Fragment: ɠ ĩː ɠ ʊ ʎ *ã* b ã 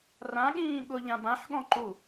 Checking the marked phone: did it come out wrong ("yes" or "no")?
no